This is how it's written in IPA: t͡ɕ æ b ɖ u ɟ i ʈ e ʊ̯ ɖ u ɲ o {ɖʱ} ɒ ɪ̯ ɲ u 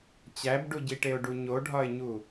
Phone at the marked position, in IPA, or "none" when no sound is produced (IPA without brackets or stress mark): ɖʱ